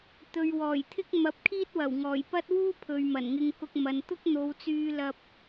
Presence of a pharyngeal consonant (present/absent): absent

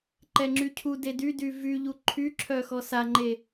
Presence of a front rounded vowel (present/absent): present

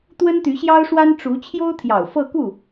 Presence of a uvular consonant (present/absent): absent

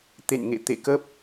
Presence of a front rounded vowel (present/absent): absent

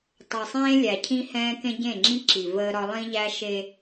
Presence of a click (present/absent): present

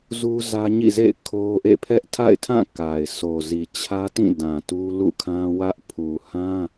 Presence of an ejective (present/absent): absent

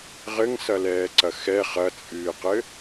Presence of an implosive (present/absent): absent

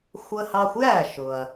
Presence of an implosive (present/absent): absent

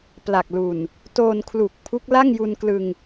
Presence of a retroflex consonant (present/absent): absent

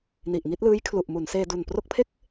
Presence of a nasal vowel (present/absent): absent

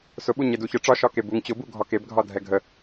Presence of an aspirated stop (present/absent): absent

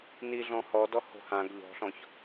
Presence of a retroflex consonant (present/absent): absent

